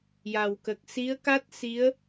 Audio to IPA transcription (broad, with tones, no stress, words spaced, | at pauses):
ja˨˩wkə˨˩k̚ si˧˥ə̯ka˦˥t̚ si˧˥ə̯